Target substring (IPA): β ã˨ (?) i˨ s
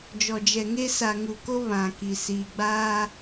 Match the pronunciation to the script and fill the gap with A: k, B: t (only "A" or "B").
A